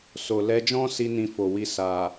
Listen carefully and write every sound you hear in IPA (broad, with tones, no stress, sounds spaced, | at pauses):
s o˨ l ɛ˧ d͡ʒ ɔ̃˦ s i˦ n ĩ˧ f o˨ w i˧ s a˨